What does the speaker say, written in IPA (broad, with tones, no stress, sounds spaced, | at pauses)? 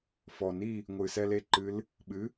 f ɔ˨˩ n i˥˨ | ŋʷ ɨ˨˩ s ɛ˧ l e˥˨ ǃ ɨ˧˥ l | ɓ ɨ˩˥